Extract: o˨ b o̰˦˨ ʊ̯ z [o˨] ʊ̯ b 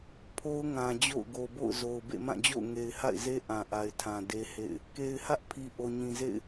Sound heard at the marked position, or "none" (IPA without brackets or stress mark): o˨